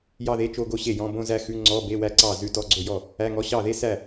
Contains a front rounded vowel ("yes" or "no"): no